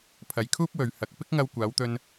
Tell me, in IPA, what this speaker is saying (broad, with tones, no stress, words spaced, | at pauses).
pʰɐ˨jkʰuː˥p̚wɵ˨ɥ hɐ˨k̚ pɪ˥k̚ŋɐ˧wkʷaː˨˧wt̪ɵ˧n